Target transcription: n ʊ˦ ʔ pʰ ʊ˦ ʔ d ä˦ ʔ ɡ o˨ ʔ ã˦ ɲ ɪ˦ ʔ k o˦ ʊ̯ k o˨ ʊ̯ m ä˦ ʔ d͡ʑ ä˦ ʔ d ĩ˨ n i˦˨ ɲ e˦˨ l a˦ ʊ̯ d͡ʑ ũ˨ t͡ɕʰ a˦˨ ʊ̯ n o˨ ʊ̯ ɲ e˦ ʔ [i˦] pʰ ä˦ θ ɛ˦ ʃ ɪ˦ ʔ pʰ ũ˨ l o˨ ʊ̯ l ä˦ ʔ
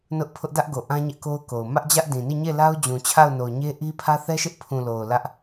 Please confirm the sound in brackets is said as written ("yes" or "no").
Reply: yes